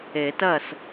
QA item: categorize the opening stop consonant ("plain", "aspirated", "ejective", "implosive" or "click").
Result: plain